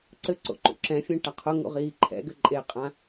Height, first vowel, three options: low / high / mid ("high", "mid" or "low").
mid